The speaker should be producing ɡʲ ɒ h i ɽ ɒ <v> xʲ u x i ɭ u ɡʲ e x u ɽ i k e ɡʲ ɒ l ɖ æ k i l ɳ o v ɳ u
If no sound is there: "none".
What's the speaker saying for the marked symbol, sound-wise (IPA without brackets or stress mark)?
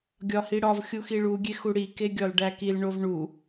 v